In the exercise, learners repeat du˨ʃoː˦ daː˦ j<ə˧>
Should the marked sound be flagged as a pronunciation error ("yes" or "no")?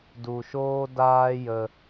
no